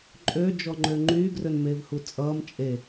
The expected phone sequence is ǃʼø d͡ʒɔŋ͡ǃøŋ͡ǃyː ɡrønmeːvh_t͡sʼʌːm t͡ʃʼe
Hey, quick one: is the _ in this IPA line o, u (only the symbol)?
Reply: u